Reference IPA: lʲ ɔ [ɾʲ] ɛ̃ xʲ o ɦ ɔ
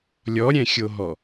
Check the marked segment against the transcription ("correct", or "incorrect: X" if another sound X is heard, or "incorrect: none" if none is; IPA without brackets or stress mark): correct